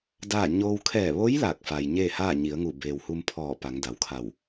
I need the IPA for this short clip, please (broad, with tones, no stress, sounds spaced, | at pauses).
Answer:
d aː˥˨ ɲ oː˧ w kʰ ɛː˧˩ ʋ o˧˥ j l aː˧˩ k̚ f a˩ j ɲ eː˥˨ h aː˥˨ ɲ i˩˧ ə̯ ŋ u˧˩ b eː˩ w h u˧ m pʰ ɔː˧˩ p a˩˧ ŋ d a˩˧ w kʰ a˧˩ w